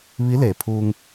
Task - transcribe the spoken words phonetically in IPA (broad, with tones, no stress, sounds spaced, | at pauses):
ʋ i˧˥ l e˩ pʰ uː˧ ŋ